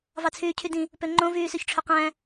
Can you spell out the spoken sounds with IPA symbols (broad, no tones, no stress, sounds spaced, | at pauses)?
v ɑ t͡sʰ yː cʰ y d ĩ | p ø ŋ͡ǃ õ v yː s ø ç ʈ͡ʂʰ ø q æ̃